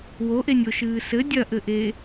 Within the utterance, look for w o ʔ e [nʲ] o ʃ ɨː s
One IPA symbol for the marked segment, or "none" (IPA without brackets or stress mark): nʲ